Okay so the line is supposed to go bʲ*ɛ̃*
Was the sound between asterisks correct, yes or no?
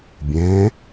yes